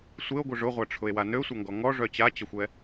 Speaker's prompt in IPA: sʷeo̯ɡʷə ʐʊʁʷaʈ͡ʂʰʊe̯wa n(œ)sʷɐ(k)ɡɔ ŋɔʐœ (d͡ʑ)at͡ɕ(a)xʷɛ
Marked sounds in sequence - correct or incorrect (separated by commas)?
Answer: incorrect, incorrect, incorrect, incorrect